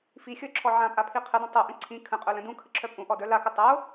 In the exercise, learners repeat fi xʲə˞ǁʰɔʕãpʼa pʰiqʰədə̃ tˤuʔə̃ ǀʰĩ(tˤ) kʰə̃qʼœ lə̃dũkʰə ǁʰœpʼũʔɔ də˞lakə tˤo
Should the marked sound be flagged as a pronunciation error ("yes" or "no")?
yes